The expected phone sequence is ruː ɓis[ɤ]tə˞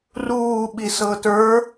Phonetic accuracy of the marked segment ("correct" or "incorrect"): correct